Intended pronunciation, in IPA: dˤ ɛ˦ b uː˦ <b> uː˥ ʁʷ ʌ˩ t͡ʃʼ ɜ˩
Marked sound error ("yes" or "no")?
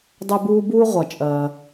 no